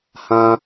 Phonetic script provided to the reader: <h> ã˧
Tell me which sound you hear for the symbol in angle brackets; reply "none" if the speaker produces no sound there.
h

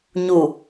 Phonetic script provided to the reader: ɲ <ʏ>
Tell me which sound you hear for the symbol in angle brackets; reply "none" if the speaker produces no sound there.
u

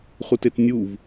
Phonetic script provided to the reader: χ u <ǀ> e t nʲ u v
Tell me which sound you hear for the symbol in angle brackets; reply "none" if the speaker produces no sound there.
t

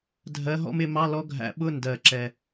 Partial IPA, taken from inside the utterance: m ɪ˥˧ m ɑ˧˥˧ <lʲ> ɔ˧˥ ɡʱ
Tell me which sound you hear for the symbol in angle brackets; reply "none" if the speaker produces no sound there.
l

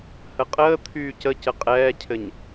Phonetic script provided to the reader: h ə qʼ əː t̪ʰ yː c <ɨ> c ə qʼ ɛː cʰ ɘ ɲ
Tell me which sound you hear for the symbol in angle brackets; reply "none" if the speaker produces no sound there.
ə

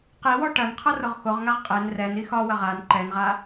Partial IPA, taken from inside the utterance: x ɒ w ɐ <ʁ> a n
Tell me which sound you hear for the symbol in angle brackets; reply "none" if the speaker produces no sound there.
ʁ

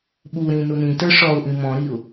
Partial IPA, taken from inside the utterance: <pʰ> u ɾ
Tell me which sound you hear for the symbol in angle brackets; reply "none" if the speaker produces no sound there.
ɓ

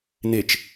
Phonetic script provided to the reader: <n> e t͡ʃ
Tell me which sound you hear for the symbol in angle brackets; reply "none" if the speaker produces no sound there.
n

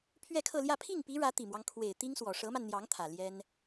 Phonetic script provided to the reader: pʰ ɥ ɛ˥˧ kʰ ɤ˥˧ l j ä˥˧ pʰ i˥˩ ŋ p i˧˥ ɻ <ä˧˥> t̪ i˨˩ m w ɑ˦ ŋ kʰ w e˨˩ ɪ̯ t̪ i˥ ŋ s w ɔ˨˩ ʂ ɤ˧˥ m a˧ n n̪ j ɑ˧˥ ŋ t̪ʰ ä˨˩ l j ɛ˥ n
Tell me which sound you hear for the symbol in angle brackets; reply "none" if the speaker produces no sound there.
ä˧˥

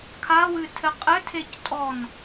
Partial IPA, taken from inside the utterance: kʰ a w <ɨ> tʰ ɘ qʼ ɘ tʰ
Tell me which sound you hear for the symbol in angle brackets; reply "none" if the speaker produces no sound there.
ɨ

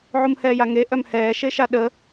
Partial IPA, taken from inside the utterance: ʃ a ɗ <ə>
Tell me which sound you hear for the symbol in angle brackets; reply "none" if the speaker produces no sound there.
ə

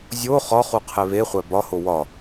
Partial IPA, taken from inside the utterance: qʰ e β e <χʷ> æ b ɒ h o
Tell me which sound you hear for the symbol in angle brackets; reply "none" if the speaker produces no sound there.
χʷ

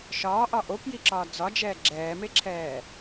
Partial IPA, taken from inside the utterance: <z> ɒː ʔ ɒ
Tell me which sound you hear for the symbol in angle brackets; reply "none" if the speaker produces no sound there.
ʃ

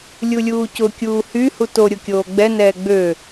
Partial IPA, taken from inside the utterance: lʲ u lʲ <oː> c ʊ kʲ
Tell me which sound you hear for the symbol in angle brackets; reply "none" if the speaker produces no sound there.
uː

